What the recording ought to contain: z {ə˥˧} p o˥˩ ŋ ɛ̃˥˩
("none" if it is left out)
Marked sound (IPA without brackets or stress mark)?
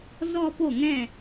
ɔ˥˧